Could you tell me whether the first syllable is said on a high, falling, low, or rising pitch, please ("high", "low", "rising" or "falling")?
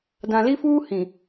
low